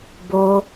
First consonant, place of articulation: labial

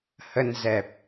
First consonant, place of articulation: glottal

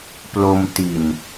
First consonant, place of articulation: labial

